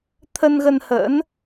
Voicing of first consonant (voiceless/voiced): voiceless